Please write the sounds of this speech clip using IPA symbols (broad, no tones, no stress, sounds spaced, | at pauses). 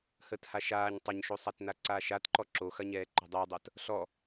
h əː t h a ʃ aː ɲ tˤ ɐ ɲ ʃ o sˤ a t n a ǀ aː ʃ a t ǃ ɔ ǁ o x ɐ ɲ ɛː ǃ ɔ̤ dˤ ɯː dˤ əː t | ɬ ɔ